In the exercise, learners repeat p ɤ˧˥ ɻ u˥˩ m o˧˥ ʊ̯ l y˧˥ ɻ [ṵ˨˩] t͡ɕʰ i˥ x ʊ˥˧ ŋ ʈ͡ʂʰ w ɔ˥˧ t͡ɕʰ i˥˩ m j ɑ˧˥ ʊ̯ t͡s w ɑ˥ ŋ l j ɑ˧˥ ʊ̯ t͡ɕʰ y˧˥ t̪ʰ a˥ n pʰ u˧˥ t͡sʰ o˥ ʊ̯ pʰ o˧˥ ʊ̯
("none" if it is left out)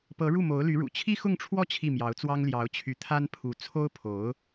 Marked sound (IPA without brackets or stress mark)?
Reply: ṵ˨˩